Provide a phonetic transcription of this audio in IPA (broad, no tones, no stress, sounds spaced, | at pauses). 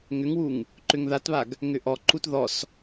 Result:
ŋ ʏ ŋ w u ŋ | ǃ ʏ ŋ ð a t β a ɡ | ŋ ʏ ʔ ɔ ǃ u t ð ɔ s